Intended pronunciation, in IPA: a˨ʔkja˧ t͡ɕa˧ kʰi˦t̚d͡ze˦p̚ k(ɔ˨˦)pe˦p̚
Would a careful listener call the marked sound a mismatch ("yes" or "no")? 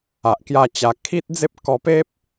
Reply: yes